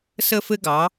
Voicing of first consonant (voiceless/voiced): voiceless